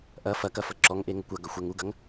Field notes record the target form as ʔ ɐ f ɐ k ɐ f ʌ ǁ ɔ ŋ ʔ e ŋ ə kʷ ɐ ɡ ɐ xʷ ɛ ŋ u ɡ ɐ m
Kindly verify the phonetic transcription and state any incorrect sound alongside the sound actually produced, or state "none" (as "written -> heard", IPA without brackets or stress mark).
m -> ŋ